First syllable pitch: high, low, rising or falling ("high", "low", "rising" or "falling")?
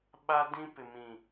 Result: high